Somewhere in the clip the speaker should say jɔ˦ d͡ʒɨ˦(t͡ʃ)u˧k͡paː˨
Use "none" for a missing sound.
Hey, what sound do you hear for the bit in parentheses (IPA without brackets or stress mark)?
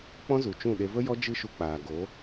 ʃ